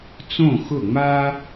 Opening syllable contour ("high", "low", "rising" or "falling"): falling